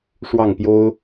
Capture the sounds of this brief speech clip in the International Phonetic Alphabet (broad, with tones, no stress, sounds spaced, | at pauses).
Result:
ʂ w ɑ˥˩ ŋ p j o˥ ʊ̯